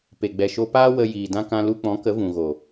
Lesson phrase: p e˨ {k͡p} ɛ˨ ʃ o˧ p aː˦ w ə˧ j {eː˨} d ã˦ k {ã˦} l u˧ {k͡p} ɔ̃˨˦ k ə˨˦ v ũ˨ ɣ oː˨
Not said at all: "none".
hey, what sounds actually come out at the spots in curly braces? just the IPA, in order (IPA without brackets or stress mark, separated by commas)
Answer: ɡ͡b, iː˨, ã˦, k͡p